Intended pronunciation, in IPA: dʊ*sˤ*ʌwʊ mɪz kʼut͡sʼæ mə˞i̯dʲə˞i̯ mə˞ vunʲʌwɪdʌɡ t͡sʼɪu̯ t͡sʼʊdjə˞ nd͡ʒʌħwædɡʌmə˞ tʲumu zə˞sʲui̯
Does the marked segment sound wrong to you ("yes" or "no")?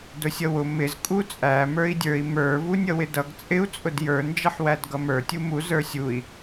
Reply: yes